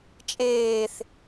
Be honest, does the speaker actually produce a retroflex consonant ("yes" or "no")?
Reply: no